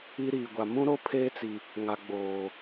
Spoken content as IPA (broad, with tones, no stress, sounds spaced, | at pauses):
i˦ ɾ iː˨ ɡʷ a˨ m ũ˦ ɾ o˦ pʰ eː˦ t͡s i˨ | ŋ a˨ ɡ͡b oː˨